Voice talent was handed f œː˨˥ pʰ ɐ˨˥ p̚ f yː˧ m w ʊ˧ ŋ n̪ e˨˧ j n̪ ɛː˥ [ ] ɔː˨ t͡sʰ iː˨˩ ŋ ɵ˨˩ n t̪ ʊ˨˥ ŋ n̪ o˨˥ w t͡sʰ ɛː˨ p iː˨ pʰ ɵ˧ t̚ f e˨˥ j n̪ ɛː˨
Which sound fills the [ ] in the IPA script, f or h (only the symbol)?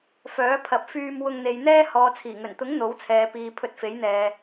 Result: h